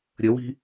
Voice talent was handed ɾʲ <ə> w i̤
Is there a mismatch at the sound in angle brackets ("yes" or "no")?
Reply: no